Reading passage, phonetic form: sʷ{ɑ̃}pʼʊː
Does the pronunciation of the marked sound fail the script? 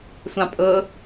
no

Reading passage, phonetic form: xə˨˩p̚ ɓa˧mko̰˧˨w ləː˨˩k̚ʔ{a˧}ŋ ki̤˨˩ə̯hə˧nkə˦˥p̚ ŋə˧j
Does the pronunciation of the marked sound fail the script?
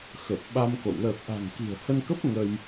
yes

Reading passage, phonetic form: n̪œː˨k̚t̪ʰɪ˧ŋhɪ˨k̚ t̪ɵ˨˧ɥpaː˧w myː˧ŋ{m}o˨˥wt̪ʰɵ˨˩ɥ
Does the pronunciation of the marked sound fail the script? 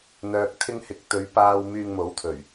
no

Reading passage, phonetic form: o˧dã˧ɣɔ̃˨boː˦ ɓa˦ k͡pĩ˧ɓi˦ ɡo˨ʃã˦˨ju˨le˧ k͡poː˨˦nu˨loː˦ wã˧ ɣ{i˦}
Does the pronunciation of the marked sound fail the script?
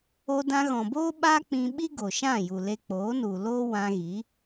yes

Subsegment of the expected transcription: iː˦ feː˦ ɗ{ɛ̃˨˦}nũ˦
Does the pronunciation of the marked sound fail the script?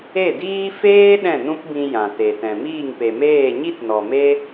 yes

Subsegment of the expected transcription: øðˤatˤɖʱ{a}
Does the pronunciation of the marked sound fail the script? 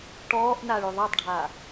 yes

